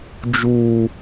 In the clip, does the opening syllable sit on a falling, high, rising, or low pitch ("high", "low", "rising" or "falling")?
high